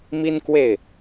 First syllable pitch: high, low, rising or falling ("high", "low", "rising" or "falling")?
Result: high